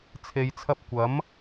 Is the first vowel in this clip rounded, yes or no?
no